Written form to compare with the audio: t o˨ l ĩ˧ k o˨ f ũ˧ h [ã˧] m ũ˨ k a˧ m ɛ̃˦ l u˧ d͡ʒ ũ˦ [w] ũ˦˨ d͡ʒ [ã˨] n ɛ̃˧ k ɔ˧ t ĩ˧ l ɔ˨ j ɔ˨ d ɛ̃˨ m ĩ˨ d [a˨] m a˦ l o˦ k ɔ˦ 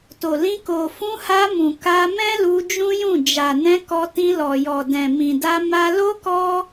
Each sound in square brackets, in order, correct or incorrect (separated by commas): incorrect, incorrect, incorrect, incorrect